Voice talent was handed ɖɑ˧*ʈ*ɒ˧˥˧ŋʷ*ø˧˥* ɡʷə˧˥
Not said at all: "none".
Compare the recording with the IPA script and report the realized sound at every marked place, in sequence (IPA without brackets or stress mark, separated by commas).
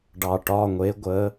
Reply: ʈ, e˧˥